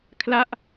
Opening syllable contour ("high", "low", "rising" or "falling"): falling